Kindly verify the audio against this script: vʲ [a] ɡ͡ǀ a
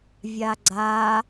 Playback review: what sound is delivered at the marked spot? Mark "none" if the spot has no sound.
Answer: a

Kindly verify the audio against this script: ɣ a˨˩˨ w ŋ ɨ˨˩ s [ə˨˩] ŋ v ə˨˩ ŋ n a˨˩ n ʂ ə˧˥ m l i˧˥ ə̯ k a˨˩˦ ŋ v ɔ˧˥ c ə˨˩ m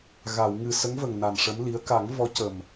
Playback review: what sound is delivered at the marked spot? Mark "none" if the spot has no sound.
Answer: ə˧˥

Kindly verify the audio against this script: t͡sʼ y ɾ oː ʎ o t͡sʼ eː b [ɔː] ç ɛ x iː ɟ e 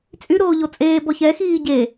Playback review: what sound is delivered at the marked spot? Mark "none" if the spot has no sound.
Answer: ɔ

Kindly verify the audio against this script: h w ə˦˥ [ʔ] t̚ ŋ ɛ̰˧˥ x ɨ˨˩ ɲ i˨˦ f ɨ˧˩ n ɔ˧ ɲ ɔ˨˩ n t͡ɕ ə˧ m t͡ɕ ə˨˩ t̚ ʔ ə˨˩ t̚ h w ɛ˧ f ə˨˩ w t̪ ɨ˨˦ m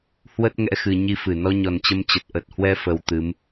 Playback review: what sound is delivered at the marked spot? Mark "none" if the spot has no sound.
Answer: none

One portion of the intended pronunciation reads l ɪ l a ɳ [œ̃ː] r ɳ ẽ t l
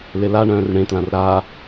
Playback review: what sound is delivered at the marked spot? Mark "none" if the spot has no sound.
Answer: œ̃ː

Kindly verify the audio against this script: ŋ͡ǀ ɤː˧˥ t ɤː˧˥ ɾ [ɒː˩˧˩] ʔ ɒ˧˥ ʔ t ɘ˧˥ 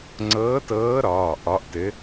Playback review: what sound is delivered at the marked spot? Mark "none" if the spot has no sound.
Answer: ɒː˩˧˩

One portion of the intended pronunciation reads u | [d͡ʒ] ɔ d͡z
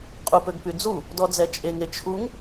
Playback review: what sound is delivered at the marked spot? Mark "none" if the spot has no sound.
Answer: d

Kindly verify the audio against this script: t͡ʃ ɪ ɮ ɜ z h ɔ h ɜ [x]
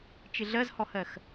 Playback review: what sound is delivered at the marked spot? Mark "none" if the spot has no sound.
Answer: x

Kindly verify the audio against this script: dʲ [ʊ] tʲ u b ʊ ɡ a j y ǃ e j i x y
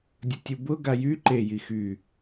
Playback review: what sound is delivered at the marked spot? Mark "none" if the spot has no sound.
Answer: ʊ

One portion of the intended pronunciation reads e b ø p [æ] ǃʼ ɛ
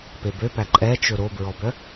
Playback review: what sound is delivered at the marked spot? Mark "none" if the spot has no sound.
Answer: æ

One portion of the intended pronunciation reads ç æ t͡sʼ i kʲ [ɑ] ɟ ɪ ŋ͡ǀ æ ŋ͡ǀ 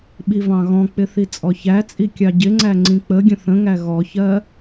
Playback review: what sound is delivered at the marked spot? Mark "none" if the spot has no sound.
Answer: ɑ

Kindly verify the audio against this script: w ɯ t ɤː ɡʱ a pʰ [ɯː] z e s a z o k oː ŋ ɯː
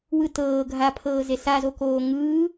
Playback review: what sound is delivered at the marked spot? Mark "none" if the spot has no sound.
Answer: ɤː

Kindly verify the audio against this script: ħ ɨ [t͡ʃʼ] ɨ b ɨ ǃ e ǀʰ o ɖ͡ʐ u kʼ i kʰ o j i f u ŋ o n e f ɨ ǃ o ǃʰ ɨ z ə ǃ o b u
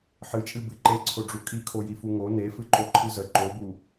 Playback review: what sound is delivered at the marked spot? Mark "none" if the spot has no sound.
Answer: t͡ʃʼ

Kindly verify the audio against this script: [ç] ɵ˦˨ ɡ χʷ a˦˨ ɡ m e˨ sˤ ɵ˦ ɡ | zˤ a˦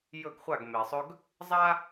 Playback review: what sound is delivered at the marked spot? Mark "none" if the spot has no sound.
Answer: j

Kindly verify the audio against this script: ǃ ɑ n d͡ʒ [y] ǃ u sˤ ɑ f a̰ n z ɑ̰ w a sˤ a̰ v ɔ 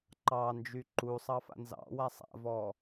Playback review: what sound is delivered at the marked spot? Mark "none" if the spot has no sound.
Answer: y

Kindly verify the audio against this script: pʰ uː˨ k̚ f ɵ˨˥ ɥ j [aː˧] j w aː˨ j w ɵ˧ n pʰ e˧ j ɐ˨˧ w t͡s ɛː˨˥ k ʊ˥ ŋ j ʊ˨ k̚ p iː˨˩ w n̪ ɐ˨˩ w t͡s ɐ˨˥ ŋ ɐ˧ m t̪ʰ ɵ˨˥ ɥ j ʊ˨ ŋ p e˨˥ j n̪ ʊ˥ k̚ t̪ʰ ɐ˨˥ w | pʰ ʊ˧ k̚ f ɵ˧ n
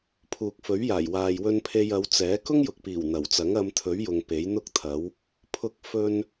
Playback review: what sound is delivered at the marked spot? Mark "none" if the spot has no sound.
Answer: aː˨˩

